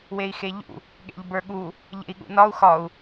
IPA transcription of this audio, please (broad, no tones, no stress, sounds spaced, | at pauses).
w e i̯ x e ʎ ṵ | ɠ ḛ ʎ b ə˞ ɠ u | ʎ ḛ i̯ ɠ ṵ n ɒ u̯ x ɒ u̯